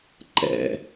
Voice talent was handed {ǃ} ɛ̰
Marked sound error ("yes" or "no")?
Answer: no